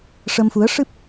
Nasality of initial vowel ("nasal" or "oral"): oral